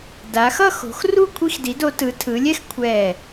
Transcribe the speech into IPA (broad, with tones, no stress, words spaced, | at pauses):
da˩˧xʌ˥˧ xo̤˩˧xru˥˧ kʷʰi˧xdi˩˧do˩˧tɯ˩˧ tʰɯ˩˧lʲɛ˥x kʷʰɛ˧˩